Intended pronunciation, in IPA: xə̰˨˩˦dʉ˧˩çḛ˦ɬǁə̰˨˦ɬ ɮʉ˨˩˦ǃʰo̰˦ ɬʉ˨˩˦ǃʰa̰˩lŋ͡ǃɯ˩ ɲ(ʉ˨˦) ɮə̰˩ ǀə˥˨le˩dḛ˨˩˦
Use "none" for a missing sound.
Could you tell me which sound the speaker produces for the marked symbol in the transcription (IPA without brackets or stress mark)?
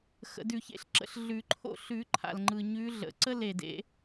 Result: ʉ˨˦